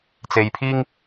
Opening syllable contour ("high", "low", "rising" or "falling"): low